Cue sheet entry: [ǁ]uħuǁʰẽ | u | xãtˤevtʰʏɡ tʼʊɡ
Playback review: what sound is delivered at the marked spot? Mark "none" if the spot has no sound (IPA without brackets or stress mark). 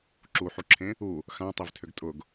ǁ